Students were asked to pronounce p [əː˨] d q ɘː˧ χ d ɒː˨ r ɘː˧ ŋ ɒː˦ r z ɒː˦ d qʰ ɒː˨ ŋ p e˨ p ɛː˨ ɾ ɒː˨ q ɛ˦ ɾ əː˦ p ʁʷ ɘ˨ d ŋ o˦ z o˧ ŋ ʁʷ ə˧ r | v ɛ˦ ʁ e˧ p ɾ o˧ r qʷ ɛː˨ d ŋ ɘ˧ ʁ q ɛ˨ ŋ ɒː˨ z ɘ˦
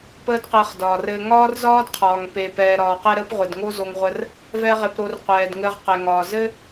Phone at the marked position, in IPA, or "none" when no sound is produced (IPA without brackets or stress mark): əː˦